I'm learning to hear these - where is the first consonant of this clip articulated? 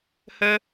throat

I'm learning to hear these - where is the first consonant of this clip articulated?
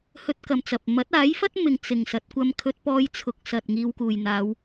throat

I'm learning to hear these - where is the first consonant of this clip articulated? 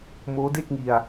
lips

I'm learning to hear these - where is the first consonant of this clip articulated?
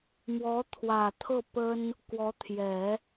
lips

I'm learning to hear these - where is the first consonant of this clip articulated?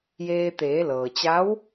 palate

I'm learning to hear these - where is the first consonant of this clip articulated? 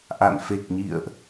throat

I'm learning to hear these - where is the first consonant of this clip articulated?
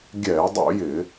velum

